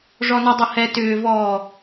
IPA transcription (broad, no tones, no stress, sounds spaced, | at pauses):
ʐ ɔ n i dˤ ɐ h ɛ t ʏː v ɔː